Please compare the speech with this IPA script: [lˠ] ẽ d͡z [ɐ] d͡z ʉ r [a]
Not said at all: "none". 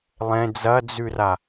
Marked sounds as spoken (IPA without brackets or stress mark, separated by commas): lˠ, ɐ, a